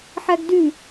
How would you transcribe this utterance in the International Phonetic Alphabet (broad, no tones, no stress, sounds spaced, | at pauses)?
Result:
ħ æ ɡ d y